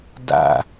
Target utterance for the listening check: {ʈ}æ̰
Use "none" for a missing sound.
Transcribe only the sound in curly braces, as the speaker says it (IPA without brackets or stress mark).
d